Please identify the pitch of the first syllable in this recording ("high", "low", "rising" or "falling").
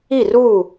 falling